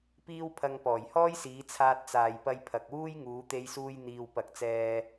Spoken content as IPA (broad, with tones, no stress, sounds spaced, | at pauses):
p iː˥ w pʰ ɐ˧ ŋ p ɔː˨˩ j h ɔː˥ j s iː˨˧ t͡sʰ aː˧ t̚ t͡s aː˨ j p ɐ˧ j pʰ ɐ˨ k̚ w uː˥ j ŋ uː˨˧ t̪ e˧ j s uː˧ j n̪ iː˨ w p ɐ˨˥ k̚ t͡s ɛː˧